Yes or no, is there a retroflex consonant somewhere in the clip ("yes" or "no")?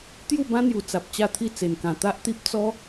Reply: no